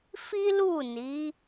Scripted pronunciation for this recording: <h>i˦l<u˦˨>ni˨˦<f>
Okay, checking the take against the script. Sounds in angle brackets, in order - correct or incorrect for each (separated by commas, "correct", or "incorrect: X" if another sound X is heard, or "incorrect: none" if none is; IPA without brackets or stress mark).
incorrect: f, correct, incorrect: none